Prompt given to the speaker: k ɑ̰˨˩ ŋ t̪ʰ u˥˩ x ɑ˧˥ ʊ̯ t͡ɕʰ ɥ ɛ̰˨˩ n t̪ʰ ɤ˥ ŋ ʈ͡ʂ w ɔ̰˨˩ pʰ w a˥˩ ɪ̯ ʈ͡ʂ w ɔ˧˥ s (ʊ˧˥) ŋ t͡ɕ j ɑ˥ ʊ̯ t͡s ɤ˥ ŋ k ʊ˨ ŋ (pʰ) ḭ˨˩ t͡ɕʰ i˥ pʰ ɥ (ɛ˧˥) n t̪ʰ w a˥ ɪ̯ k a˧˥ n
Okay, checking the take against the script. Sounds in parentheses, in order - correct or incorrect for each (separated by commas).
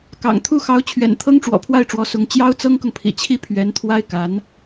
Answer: correct, correct, correct